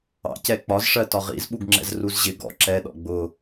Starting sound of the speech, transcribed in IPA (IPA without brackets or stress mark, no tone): ɑ̰